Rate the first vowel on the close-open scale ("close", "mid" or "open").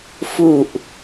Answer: close